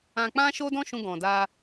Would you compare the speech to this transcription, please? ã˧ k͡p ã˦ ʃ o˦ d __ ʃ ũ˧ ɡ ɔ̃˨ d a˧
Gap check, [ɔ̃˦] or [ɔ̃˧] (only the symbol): ɔ̃˦